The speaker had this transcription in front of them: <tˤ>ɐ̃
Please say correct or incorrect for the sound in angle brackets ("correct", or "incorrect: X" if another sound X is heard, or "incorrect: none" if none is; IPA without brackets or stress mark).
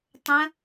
correct